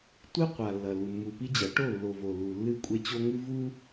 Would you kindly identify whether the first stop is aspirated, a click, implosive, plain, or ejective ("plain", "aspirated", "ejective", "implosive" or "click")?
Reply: plain